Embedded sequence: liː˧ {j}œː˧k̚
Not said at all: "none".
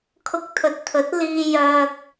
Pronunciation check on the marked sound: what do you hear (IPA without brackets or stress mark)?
j